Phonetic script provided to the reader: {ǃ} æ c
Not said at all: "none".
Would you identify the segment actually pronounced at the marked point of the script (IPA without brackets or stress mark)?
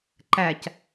ǃ